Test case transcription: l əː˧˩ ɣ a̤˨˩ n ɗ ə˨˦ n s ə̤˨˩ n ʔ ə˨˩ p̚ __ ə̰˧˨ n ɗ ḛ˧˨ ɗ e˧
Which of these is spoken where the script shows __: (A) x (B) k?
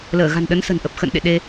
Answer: A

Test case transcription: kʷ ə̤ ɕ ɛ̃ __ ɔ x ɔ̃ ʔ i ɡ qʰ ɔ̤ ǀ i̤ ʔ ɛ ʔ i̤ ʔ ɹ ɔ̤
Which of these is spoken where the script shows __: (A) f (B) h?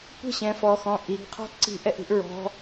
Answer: A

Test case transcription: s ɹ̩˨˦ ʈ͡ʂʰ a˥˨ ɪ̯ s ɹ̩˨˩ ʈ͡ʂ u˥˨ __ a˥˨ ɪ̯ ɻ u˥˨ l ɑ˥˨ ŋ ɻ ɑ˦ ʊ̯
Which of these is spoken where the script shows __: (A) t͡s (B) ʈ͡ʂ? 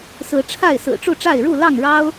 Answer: B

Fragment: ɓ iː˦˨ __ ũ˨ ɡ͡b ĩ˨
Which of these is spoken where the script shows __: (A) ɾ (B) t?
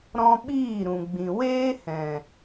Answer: A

